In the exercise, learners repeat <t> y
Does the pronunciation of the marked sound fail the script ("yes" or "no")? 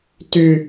no